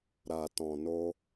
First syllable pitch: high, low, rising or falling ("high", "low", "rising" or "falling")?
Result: low